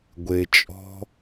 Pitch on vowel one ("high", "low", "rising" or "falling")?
low